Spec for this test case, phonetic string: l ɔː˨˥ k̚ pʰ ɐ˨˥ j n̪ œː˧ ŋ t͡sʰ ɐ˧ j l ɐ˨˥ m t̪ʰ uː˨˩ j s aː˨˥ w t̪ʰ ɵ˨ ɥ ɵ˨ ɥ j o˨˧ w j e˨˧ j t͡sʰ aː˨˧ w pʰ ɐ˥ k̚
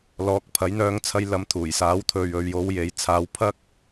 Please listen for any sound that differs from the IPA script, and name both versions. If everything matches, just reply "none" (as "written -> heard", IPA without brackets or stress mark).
none